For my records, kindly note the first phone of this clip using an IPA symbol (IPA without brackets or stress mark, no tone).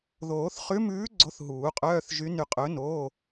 ð